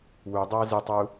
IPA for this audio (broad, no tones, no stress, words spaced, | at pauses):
wudˤʌː zitˤu